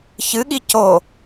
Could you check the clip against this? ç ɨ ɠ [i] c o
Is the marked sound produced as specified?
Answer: yes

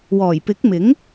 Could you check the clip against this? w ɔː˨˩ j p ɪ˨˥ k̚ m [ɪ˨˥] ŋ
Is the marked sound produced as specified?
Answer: yes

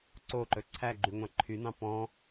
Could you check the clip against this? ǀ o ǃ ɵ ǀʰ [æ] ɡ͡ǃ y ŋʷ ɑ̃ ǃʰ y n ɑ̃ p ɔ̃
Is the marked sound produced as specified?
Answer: yes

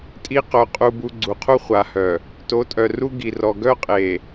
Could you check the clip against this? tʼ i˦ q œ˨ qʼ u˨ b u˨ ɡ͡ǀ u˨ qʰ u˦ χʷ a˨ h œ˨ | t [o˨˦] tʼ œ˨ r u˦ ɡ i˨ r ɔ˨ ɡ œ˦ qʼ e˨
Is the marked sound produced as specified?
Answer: yes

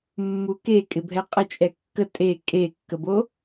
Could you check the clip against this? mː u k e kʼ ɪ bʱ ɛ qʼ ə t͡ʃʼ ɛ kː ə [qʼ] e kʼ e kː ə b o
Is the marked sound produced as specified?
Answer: no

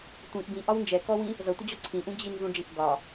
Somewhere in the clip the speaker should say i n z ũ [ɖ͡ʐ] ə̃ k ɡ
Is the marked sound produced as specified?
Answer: yes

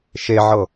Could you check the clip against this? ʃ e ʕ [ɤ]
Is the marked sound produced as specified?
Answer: yes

